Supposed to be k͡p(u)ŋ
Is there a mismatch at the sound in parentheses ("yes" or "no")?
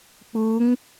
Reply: no